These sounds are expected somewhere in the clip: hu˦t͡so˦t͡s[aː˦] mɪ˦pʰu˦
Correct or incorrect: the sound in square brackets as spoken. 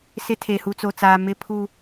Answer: correct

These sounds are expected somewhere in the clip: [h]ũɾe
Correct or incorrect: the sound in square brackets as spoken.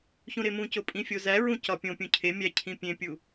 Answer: incorrect: ç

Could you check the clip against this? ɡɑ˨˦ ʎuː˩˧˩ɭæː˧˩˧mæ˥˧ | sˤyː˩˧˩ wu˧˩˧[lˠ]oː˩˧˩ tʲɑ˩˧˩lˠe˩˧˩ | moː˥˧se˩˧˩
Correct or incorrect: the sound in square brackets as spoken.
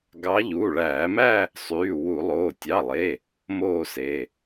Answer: correct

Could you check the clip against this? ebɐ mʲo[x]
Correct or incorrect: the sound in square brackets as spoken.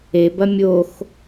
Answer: correct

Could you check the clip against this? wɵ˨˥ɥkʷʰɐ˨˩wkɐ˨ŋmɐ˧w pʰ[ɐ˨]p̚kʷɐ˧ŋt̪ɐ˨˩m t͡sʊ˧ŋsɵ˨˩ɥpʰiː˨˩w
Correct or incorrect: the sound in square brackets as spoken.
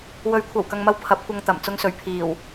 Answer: incorrect: ɐ˨˥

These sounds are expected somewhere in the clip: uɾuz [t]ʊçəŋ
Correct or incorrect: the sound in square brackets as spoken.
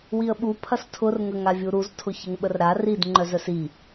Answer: incorrect: tʰ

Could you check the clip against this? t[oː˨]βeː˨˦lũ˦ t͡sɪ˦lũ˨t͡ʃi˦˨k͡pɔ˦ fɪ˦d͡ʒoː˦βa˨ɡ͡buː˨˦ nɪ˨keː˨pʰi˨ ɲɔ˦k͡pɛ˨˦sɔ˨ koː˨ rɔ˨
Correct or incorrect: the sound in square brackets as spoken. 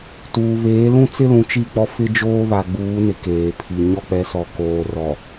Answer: incorrect: uː˨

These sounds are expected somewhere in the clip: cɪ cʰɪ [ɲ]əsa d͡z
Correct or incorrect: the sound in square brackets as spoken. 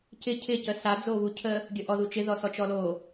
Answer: incorrect: c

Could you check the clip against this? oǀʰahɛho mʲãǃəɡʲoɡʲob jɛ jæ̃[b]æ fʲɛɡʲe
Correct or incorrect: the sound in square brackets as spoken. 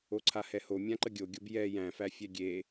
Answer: incorrect: f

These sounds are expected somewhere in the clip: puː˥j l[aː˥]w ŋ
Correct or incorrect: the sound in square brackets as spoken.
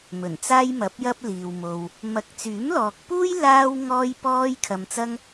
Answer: correct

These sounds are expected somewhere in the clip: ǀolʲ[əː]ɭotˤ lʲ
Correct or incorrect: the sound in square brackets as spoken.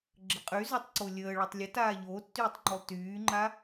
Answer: correct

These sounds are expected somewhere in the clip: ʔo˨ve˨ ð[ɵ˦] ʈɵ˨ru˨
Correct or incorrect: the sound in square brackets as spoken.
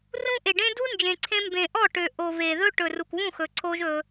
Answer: correct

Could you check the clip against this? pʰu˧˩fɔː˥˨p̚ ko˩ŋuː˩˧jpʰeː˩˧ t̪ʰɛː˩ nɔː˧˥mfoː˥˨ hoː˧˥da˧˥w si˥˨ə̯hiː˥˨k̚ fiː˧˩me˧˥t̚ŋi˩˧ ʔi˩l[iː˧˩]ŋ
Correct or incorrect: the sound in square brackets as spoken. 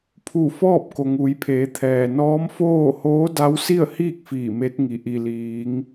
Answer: incorrect: iː˩˧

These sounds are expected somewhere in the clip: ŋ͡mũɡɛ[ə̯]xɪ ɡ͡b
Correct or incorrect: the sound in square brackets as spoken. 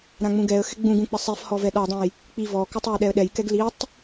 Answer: correct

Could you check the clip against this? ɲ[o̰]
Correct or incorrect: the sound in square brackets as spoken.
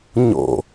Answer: correct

